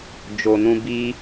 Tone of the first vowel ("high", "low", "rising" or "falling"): low